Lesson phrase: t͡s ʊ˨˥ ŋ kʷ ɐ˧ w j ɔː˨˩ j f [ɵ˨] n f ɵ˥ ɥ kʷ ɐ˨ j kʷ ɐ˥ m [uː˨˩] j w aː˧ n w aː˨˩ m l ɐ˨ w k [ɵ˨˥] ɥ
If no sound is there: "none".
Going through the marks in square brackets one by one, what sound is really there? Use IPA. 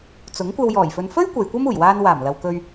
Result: ɵ˨, uː˨˩, ɵ˧

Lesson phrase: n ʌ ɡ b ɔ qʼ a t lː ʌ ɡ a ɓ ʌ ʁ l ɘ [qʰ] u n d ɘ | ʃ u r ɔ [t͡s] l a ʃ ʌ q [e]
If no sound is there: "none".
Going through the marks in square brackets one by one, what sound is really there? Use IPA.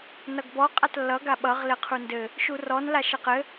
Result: qʰ, n, ɘ

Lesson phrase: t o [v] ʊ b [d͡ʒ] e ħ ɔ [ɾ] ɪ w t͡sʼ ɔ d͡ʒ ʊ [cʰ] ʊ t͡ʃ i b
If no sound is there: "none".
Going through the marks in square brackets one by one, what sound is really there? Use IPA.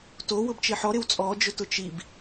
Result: w, t͡ʃ, ɾ, t

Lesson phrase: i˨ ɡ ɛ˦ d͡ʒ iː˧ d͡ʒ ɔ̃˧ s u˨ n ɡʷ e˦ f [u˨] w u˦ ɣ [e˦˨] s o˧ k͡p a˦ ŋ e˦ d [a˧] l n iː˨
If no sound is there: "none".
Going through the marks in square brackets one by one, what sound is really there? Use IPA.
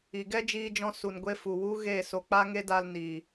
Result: u˨, e˦˨, a˧

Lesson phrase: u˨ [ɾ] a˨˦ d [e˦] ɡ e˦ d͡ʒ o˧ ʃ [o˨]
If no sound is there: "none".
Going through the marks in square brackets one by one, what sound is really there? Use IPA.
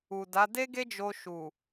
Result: d, e˦, u˨

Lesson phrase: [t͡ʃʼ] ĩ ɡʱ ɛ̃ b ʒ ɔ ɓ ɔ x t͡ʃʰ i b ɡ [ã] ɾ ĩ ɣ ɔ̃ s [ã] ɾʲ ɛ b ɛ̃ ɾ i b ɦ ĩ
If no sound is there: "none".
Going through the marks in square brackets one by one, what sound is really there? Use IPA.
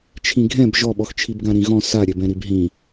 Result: t͡ʃʰ, ã, a

